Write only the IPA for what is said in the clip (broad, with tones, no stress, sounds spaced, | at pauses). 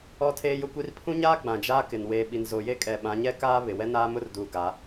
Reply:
ɔ˦ tʰ eː˦ j ʊ˦ kʷ i˦ r pʰ ũ˦ ɲ aː˦ ɡ͡b ã˨ d͡ʒ aː˦ k ɪ˨ n w eː˨ ɓ i˨ n z o˨ j e˦˨ kʼ ɛ˨ ɓ ã˨˦ ɲ ɛ˦ k aː˦ β ɪ˨ w ɛ˦ n aː˦ m ʊ˦ r d uː˨ ɡ a˨˦